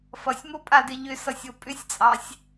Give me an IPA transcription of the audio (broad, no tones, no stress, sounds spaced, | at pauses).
f ʌ sʲ m o pʼ a d ɪ ʎ ʏ s ʌ sʲ o pʼ ʏ sʲ t͡sʼ ɑ sʲ